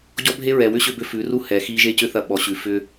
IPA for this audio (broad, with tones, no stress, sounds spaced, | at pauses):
ɟ ɔ˦ bʱ e˦ ɹ ɛ˨ w ʏ˦ ɕ ʏ˧ b ʏ˧ f ʉ˨˦ r u˦ h ɛ˨ x i˧ ʒ e˦ c ʏ˦ θ ɐ˧ ɓ ɔ˨ ɕ ʉ˨ f ʏ˧